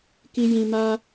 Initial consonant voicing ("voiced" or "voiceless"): voiceless